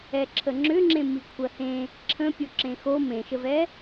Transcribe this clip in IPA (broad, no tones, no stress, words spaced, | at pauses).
ɛǁʰəŋ͡ǁʏŋ͡ǁẽ mikʷʰɜhẽ | ǁʰə̃ pʲoǁẽxo mẽʃəvɛ